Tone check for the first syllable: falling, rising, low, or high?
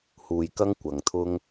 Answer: low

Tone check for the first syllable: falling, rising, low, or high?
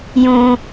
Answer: high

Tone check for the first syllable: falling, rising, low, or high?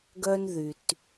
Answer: high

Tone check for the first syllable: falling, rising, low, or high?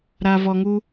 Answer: low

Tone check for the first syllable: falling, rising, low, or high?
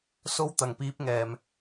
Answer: high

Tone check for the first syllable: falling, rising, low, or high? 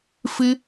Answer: high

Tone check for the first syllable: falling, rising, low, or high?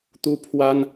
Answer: high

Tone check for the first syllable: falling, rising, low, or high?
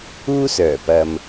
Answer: high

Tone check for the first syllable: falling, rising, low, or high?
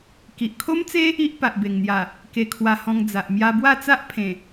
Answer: low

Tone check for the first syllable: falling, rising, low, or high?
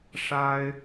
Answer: high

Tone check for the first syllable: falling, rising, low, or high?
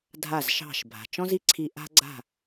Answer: falling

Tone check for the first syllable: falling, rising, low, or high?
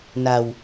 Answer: low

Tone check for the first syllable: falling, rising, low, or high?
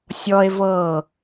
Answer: high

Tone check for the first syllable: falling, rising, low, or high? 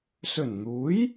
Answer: low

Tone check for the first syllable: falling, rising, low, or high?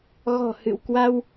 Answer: low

